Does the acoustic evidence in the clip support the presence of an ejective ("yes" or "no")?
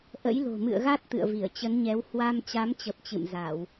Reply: no